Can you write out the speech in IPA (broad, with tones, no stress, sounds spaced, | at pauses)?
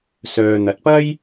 s œː˨ n̪ ɐ˨ t̚ p ɐ˥ j